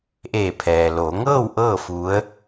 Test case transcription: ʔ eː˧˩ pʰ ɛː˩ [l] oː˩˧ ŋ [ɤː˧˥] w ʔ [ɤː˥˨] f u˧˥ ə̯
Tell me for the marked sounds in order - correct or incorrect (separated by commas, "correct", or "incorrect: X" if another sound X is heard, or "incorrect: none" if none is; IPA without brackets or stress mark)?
correct, incorrect: ɤː˥˨, correct